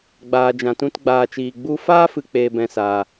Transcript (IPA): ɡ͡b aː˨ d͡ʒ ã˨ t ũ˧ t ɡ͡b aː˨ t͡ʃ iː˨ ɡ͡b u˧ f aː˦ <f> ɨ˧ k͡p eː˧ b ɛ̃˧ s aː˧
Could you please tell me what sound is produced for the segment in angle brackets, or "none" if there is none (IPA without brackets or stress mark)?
f